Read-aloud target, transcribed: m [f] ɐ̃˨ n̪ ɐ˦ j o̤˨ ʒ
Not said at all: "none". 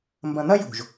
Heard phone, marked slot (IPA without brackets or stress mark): b